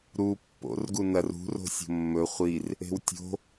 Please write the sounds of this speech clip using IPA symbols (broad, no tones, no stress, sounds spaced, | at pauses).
ɾ u pː o̰ r ɡ u n ɐ r ṳ r o̤ sʲ o̤ mː ɵ χʷ i r | e̤ w tʲ o̤